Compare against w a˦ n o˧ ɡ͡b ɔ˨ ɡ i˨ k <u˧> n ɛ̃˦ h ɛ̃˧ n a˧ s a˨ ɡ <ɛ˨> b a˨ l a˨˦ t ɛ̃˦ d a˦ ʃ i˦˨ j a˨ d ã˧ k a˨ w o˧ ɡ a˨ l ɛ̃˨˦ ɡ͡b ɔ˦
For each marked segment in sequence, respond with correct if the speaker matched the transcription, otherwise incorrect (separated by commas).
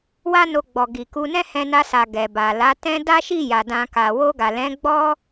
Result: correct, correct